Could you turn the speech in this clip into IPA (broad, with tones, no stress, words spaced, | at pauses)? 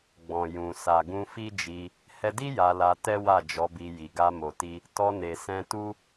ɡ͡bɔ̃˨ jũ˨ sa˨ɡũ˧fi˦d͡ʒi˧ | hɛ˧di˦ ja˧la˧tɛ˦ wa˦˨d͡ʒɔ˨˦bi˧ji˨ ɡa˧mo˨ti˧ | tɔ˧ne˨sɛ̃˧ tu˦